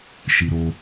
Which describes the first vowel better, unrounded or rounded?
unrounded